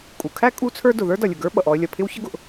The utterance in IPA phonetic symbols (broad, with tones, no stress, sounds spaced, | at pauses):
kʼ u˩ kʰ æ˥ kʼ u˥ t͡sʰ ə˞˥ d ʊ˩ ð ə˞˥ d ʌ˩ lʲ ʊ˩ ɡ ə˞˥ ɓ ʌ˩ ʔ ɔ˧ ə̯ lʲ ʌ˩ pʰ ɪ˥ w ç ə˥ ɡ ʊ˩ ʔ